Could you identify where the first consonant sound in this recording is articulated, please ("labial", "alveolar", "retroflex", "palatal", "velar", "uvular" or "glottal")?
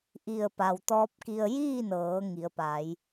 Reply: glottal